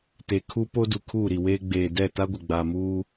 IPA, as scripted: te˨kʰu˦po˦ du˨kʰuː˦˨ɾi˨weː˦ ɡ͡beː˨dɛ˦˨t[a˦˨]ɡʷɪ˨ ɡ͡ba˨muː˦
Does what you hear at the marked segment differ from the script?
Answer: yes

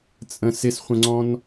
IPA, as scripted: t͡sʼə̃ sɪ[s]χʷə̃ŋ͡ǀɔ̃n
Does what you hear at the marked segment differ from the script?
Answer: no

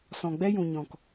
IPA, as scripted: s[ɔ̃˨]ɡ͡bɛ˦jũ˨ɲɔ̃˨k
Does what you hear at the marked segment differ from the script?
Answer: no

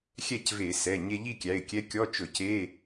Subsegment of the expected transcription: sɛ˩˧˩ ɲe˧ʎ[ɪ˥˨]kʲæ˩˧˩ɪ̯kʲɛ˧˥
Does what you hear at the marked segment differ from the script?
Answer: yes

